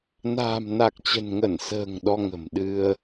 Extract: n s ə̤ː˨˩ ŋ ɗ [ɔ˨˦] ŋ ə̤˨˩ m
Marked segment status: incorrect: ɔ˧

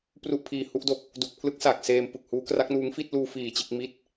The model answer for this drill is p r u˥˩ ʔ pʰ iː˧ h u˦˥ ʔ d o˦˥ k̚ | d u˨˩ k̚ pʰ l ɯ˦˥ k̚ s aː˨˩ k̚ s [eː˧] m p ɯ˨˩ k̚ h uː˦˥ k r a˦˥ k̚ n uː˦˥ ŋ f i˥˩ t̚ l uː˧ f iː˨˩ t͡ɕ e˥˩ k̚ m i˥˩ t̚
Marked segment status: correct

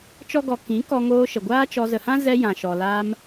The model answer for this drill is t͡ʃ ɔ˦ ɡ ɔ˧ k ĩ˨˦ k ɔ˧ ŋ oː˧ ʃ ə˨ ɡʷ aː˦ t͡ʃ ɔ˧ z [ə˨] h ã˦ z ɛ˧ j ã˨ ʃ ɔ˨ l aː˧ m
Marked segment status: correct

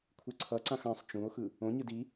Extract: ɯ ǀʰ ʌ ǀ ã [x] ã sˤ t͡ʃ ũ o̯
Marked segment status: correct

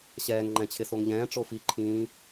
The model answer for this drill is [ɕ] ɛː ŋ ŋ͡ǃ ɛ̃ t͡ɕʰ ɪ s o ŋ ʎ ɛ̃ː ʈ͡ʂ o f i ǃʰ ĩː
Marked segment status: correct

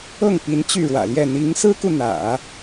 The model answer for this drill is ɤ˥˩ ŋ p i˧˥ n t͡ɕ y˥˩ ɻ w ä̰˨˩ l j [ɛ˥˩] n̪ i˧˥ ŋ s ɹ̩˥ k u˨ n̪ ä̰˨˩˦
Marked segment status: correct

